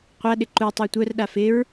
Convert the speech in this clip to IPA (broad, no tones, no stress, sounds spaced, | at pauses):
qʷ a ɗ ɪ ǃ u tˤ œ tʷ œ r ɗ a f ɪ ɹ